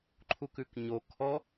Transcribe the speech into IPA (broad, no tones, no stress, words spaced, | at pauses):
ǃʰukʉkɲo kʰɔ